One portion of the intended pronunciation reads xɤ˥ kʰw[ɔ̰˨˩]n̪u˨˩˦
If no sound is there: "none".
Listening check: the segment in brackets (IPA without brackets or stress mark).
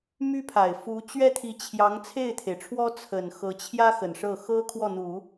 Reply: ɔ˥˩